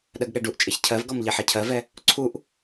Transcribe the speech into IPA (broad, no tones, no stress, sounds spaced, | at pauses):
ɗ ɜ ɡ ɠ ɛ ɖ u ʔ t͡ʃʼ e ç cʰ ɜ v ɡ ɔ m ʎ e ħ ɛ cʰ ɜ v ɛ | ǀʰ u ʔ